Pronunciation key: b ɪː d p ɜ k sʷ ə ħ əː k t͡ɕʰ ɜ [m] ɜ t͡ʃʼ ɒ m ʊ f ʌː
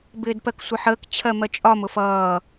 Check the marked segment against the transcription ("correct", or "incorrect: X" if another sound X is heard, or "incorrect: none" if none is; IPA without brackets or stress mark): correct